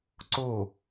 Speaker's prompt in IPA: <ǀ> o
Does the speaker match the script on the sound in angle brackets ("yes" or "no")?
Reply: yes